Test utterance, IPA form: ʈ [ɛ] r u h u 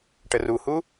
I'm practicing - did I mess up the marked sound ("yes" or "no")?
yes